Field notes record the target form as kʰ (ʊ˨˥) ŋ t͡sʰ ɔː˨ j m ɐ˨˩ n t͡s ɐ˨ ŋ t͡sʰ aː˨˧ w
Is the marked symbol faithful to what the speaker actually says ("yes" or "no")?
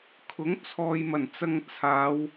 yes